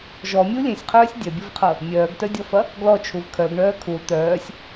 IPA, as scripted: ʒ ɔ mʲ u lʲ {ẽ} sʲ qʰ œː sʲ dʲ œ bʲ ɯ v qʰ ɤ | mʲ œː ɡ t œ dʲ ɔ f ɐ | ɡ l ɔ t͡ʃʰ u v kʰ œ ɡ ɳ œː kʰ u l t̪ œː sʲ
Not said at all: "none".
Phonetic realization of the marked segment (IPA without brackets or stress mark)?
ẽ